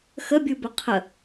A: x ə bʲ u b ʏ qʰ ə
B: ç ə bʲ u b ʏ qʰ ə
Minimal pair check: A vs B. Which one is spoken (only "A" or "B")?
A